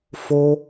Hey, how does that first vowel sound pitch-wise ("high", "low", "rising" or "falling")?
high